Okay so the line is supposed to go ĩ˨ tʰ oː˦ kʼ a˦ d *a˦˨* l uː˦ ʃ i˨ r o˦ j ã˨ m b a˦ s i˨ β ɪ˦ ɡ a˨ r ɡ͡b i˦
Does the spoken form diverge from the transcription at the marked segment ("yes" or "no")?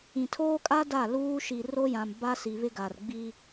no